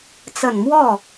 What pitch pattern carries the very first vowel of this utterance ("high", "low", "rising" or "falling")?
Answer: low